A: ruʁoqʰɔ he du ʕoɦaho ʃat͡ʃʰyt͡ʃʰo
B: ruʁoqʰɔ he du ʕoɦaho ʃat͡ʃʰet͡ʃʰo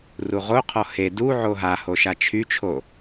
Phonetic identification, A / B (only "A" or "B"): A